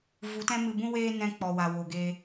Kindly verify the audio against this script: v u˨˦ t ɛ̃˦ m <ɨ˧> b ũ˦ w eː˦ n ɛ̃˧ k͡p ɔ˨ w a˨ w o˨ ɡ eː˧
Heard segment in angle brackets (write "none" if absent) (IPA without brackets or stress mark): ɨ˧